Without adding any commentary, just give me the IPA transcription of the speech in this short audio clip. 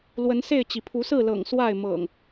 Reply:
l w ə˨˦ n s e˥˨ ɪ̯ t͡ɕ i˩ pʰ u˨˦ s ɹ̩˥˨ l ɤ̰˨˩ ŋ s w a˥˨ ɪ̯ m ɤ̰˨˩ ŋ

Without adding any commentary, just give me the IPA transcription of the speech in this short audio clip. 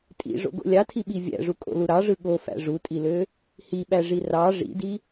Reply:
tʼ ḭ ʐ o̰ ɡ o̰ lʲ ɑ tʰ i ɓ i vʲ æ̰ ʐ u kʼ o̰ l u ɾ ɑ ʐ ɯ ɠ o f æ̰ ʐ u tʼ i l ø | h i ɓ æ ʐ i r ɑ ʐ ḭ d i

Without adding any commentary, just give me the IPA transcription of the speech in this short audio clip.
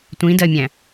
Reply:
tʷ ĩ d ɜ mʲ æ̃

